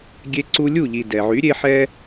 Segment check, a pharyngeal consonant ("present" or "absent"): present